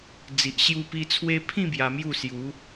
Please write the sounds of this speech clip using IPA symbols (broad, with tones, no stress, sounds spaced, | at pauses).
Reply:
d͡z i˨ ʔ ɕ j u˧ p i˧ t͡sʰ w e˧ pʰ ĩ˥˧ b j a˧ m j u˥˧ s j u˨˦